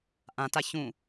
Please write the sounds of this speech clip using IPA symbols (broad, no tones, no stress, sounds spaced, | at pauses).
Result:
ʔ ã t a ç ũ